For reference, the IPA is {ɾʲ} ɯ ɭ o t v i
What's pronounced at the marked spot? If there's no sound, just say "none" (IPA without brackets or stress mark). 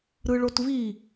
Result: ɾ